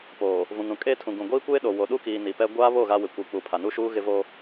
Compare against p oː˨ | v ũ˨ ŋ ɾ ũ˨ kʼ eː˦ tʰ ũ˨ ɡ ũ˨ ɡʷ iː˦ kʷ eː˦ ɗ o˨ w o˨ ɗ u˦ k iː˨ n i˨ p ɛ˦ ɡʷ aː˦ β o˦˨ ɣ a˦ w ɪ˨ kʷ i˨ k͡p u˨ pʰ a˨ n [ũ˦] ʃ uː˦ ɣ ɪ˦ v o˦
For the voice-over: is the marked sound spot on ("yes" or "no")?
no